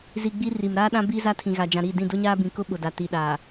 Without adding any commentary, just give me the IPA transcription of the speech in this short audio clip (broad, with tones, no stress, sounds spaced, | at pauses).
z i˨ ɡ͡b i˦ r i˨ m ɾ aː˦ ɗ ã˦ b i˦ z a˦ tʰ ĩ˨ ɣ a˨ d͡ʒ ã˨ ɾ i˦˨ d ĩ˦˨ d ʊ˦ ɲ aː˦ b ĩ˨ k ʊ˦ ɓ ʊ˨ d a˨ t i˨ ɗ aː˨